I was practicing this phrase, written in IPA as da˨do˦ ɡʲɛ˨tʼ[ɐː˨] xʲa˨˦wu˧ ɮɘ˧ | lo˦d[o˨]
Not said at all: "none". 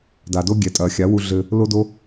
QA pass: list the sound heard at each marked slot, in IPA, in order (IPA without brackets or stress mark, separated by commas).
ɐː˨, o˦